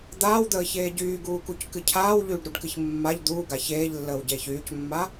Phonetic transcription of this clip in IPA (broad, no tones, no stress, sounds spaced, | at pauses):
d̪ aː w d̪ əː ç eː ɟ yː ɡ uː k u c k ɨ cʰ aː w ʎ yː ɖ ɾ u ɖ k ɨ ç mː a ʎ d̪ uː ɡ a ç eː ʎ lː əː w ɟ eː ç yː c mː a